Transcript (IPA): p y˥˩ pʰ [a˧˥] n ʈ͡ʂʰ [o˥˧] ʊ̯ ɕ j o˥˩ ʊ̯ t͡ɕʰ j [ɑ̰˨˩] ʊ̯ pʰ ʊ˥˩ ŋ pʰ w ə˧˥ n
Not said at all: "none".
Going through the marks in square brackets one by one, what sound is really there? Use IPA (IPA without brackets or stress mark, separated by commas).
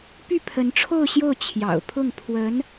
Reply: ə˧˥, o˥˧, ɑ̰˨˩